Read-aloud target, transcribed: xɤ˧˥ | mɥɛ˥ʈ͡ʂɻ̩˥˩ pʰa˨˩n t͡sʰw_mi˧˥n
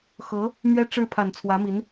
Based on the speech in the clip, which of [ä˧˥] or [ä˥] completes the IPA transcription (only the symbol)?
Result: ä˧˥